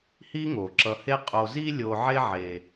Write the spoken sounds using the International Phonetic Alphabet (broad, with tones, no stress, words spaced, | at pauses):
hi˥ŋo˩ ǁʌ˨he˦ qʼo˨zi˦lʲo˨ ʕe˦ʕe˩